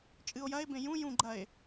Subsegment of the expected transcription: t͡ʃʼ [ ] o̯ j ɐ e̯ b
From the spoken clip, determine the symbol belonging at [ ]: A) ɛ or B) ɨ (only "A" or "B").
B